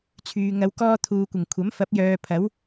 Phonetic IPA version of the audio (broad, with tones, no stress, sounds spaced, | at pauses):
t͡sʰ yː˨ ŋ ɐ˨˧ w k ɔː˧ t̪ʰ uː˨ kʷ ɪ˨˩ ŋ kʷʰ ɐ˨˥ m f ɐ˨˥ p̚ j œː˨ pʰ ɐ˨˥ w